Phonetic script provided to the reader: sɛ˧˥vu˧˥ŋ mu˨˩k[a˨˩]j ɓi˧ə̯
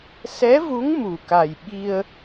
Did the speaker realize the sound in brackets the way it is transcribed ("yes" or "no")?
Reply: yes